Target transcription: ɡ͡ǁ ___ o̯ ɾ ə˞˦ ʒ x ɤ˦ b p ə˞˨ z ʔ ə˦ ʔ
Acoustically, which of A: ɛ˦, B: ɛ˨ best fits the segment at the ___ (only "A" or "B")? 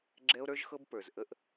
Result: A